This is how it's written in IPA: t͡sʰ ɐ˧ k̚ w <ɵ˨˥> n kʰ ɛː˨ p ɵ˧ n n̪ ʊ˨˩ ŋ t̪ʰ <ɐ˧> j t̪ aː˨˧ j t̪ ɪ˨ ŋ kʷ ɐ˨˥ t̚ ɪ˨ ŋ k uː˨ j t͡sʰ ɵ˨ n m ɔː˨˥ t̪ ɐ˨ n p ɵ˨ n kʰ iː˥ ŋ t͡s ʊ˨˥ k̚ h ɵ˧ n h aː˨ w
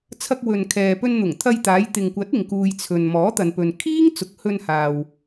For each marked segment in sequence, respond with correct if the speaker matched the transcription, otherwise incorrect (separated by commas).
incorrect, correct